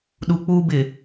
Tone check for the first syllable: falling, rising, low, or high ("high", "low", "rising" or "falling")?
low